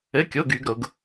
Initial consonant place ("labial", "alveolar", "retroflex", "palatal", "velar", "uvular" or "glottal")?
velar